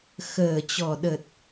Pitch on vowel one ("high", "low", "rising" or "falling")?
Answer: low